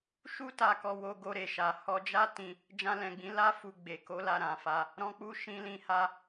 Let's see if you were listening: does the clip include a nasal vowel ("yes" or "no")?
yes